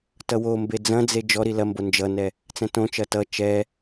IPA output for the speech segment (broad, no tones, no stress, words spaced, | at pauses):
tʌwombe d͡zɐ̃d͡ze d͡ʒɔɾi lɐmbo nd͡ʒʌnɛ | t͡sɛ̃tõt͡ʃɐ tʌ t͡ʃɛ